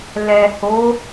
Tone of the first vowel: low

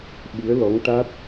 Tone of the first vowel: rising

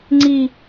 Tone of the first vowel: falling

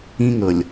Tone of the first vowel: high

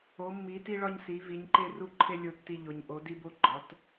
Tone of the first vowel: rising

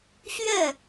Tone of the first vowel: falling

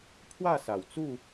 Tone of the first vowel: falling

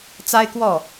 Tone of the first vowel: high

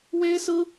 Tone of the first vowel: high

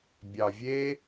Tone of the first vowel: low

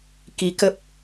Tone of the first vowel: rising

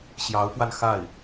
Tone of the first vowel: rising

